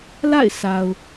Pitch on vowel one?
falling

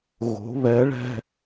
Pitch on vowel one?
rising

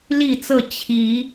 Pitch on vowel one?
falling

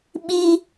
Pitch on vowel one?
high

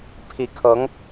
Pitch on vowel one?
rising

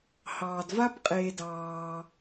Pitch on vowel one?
low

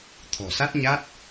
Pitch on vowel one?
low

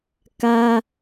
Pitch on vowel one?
high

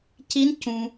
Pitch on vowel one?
rising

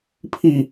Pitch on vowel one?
falling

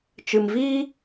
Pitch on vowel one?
low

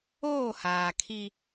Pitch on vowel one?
falling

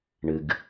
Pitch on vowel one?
low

